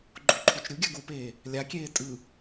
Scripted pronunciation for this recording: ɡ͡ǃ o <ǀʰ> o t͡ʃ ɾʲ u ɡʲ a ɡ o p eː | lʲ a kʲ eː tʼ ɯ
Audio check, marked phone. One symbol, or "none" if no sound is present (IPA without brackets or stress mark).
ǃʰ